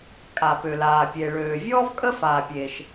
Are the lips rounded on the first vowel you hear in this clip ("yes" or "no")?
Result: no